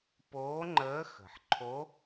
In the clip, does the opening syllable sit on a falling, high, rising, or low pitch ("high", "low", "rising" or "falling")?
rising